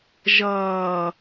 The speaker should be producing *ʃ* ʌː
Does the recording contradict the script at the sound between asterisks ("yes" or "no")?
yes